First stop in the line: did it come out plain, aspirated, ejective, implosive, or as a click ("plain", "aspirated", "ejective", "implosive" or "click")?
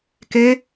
plain